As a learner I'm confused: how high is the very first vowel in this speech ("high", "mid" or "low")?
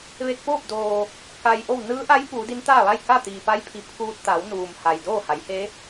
mid